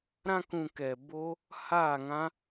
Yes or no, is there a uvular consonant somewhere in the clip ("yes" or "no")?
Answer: no